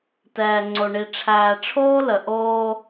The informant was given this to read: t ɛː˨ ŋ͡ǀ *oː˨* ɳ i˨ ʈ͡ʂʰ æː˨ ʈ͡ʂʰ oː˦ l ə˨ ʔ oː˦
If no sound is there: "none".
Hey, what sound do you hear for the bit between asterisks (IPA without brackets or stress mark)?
o˨